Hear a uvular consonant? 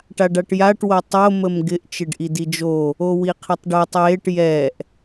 yes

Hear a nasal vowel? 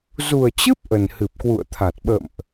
no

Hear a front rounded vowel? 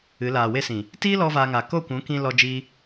no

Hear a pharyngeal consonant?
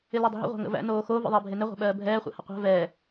no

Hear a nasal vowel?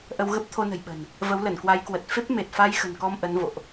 no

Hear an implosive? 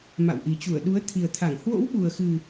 yes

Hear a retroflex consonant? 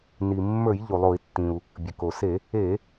no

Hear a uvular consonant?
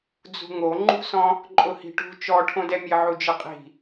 yes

